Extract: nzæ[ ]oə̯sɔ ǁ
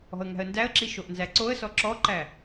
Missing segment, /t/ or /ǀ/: ǀ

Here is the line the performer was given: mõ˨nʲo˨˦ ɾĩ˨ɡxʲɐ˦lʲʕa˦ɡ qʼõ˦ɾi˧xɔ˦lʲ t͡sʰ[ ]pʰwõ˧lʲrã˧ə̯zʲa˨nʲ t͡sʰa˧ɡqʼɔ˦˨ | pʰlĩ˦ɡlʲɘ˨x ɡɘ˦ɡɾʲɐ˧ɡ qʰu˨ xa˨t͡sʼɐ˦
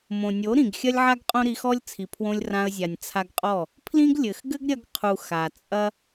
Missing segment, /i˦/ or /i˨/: i˨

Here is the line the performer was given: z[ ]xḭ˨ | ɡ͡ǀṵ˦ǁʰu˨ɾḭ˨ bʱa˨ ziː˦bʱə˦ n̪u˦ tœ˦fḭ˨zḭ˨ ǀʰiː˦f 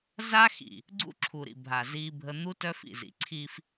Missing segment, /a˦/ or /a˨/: a˦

